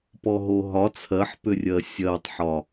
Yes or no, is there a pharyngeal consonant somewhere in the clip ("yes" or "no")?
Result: yes